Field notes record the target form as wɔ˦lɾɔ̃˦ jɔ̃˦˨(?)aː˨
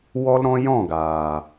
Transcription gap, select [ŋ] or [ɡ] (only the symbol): ɡ